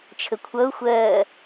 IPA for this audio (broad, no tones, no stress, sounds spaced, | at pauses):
t͡ʃʰ ə kʷʰ ʌ ʊ̯ xʷ ɜː